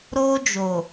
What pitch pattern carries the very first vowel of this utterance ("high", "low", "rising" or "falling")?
high